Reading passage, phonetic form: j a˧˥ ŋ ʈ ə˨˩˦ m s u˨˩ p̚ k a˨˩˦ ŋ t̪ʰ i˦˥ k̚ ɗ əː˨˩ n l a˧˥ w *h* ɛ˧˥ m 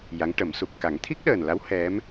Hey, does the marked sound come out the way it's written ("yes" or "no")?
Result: yes